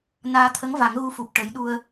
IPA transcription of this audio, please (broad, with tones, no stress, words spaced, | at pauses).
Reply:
naː˧t̪ʰə˧˥ŋva˨˩˦ŋ ɣu˧˥fu˨˩p̚ ʈə˨˩˦jɗu˧ə̯